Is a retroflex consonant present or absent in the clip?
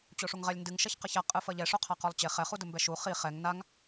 present